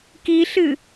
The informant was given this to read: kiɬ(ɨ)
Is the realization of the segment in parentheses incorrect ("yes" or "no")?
no